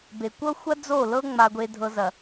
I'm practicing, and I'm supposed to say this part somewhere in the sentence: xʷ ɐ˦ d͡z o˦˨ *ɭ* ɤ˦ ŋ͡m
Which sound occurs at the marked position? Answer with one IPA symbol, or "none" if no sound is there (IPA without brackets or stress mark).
l